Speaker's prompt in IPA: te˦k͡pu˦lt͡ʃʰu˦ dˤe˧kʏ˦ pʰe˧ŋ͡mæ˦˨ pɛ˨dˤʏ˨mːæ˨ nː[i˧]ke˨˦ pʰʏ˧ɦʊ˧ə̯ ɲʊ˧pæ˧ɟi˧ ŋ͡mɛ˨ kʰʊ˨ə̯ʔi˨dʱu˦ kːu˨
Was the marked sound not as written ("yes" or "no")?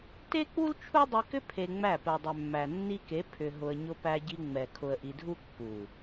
no